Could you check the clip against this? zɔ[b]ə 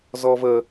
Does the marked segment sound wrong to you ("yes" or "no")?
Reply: yes